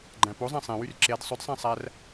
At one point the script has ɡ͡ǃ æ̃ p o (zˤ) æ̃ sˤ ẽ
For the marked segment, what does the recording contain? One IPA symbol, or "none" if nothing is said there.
zˤ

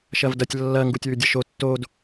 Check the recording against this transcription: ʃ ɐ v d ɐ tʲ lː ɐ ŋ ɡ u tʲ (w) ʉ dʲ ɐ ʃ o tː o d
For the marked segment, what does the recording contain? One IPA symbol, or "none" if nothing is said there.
w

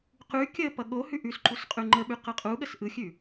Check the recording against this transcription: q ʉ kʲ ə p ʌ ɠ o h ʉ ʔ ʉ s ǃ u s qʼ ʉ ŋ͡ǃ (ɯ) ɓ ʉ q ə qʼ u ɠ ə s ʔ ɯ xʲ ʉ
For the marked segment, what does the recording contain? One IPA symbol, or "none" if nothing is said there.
ə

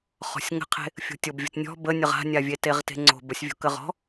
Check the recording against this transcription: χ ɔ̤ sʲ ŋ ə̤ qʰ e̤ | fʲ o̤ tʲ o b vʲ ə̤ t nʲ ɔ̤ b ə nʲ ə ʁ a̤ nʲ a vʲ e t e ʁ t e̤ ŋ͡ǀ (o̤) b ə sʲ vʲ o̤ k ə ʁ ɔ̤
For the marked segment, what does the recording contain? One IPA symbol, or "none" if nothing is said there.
o̤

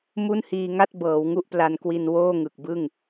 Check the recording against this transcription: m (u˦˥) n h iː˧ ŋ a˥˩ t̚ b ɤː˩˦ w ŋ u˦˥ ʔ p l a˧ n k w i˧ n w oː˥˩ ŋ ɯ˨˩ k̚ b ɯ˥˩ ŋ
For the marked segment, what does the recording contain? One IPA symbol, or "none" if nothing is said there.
u˥˩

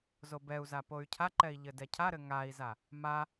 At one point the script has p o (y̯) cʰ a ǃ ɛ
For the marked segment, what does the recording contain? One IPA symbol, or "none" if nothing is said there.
y̯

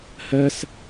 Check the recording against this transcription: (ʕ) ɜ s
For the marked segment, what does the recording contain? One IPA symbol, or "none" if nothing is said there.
h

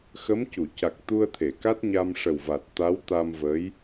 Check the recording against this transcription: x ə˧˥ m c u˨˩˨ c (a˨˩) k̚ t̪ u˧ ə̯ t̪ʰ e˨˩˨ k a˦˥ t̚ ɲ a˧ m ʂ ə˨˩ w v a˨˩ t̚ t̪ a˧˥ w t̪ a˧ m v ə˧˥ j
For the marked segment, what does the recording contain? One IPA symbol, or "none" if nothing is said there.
a˨˩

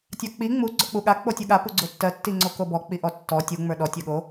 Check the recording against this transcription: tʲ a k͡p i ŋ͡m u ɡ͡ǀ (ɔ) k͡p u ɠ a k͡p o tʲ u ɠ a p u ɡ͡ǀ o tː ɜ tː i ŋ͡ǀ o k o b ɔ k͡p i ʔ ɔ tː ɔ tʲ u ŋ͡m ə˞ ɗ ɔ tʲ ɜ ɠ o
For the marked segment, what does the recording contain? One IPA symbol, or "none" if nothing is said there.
ɔ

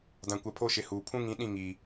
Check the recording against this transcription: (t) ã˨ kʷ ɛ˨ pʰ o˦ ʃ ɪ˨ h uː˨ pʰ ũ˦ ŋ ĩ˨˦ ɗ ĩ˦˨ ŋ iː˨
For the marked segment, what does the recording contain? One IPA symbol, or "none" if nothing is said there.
d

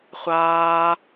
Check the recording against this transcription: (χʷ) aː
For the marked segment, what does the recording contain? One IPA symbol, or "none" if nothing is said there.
χʷ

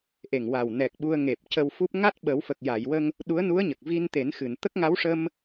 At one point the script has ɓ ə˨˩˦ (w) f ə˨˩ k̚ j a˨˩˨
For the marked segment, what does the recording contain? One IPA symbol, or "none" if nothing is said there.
w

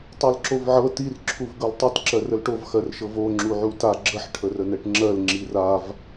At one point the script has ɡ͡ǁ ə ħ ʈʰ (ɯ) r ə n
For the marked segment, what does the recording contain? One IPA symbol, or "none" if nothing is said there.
ə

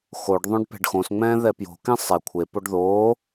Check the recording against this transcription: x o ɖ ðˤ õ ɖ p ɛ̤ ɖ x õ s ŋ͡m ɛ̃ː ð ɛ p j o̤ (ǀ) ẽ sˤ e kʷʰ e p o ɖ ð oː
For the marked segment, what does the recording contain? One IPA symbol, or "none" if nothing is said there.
k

